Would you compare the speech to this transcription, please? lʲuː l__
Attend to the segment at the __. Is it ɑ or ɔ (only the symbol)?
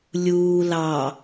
ɑ